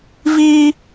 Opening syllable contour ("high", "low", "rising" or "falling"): high